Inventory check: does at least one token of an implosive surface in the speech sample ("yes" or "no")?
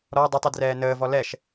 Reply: no